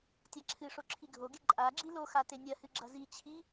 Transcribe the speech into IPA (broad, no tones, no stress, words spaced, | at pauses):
tʲaǁʰɨʂo ǁʰiɡʱoɡe ǃʼa ɡ͡ǁiloxa tenʲɐhɨ ɡ͡ǁɐzit͡ɕʰi